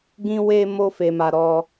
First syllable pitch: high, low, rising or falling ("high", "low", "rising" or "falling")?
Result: high